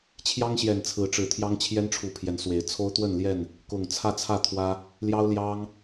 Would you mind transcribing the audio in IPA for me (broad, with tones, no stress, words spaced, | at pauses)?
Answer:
t͡ɕʰjɑ˦ŋɕjɛ˨˩n t͡sʰɹ̩˨˦ʈ͡ʂɻ̩˨˩t̪ʰjɑ˦ŋ t͡ɕʰjɛ˦nʈ͡ʂʰu˨˩ pʰjɛ˨˦nswe˨˦ɪ̯ t͡sʰo˦ʊ̯t̪wə˥˨n ljɛ˥˨n | kʊ˨˩ŋ t͡sʰä˥˨ t͡sʰä˥˨t̪ʰwä˦ | ljɑ˦ʊ̯ljɑ˦ŋ